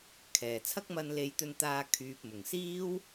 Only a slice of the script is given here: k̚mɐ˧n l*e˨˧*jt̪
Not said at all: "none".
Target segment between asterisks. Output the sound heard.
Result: e˨˧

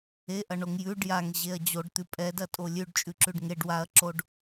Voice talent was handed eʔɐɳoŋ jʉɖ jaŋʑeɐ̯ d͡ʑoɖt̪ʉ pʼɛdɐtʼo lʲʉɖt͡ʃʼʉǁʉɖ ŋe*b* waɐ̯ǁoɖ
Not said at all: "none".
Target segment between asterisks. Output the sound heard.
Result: ɖ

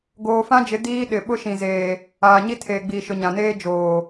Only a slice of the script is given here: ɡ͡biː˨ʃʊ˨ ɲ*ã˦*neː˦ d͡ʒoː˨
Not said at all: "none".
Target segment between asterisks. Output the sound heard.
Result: ã˨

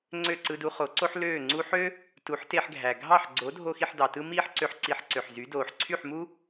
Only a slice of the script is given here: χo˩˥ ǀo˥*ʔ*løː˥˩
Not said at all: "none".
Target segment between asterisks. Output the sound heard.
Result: ħ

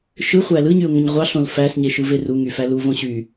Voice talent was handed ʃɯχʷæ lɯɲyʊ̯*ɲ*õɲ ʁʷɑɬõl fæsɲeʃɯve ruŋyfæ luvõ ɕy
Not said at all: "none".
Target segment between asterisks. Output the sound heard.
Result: ŋ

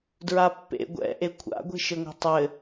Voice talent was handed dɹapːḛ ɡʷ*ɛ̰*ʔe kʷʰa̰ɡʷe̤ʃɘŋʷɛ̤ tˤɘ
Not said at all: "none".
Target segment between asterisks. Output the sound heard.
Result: ɛ̰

